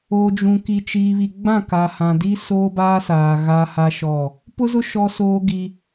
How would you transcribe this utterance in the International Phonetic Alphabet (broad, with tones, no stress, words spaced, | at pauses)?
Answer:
o˨d͡ʒũ˨ki˨ t͡ʃiː˨βi˨ɡ͡bã˦˨ka˨ hã˨ di˦soː˦baː˦saː˨ ɣa˦ha˦ʃɔ˦˨ | pʊ˦zʊ˦ ʃɔ˦soː˦ɡi˦